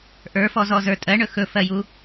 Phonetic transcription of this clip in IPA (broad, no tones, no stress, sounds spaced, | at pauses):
ʔ ə˞ f ɔ z ɔ z ə˞ tʼ ɜ ɳ ɵ x ɵ f ɜ j u